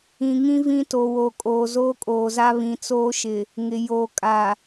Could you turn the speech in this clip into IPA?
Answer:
ĩ˨ ŋ ĩ˦ v ĩ˦ t o˨ w o˨ kʼ oː˨ z oː˦ kʼ oː˨ z a˦ β ĩ˨ t͡s oː˦ ʃ ɪ˨ | ŋ ɪ˨ j oː˨ kʼ a˨

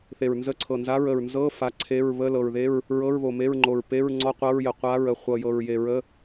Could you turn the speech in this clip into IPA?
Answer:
θ e˨˩ ɹ n z ə˧˥˧ ǀʰ ɤ˨˩ n z a˧˥˧ ɹ ə˨˩ ɹ n z ɤ˧˥˧ f a˧˥˧ ǀʰ e˧˥˧ ɹ β ə˧˥˧ l ɤ˨˩ ɹ ð e˧˥˧ ɹ | ɹ ɤ˧˥˧ ɹ β o˨˩ m e˧˥˧ ɹ ŋ͡ǃ o˨˩ ɹ p e˧˥˧ ɹ ŋ͡ǀ ɔ˧˥˧ qʷ ɤ˧˥˧ ɹ j ə˨˩ qʷ a˧˥˧ ɹ ə˨˩ χʷ ɤ˨˩ j ɤ˨˩ ɹ j e˨˩ ɹ ə˧˥˧

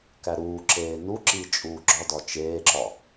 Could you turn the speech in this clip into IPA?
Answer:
k æ ɾ uː ǁ eː n u ǁ iː t͡ʃʼ uː ɡ͡ǁ ɒ d ɒ t͡ʃ eː ǁ ɒ

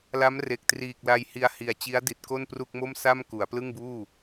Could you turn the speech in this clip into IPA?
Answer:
l a˦˥ m r e˨˩ k̚ t r iː˨˩ k̚ l a˧ j h i˧ a̯ h i˨˩ a̯ t͡ɕ i˦˥ a̯ d i˨˩ t̚ k o˥˩ n p r u˥˩ k̚ m o˥˩ m s a˥˩ m k u˩˦ a̯ p l ɯ˥˩ ŋ b uː˥˩

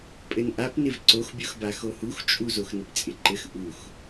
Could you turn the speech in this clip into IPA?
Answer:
pʼ ɘ n ʔ a p n ɪ v ǀ o x bʲ o x b a x o h u x t͡ʃʼ u z o x n ɪ p t͡sʼ ɪ ǃ ɘ x ʔ u x

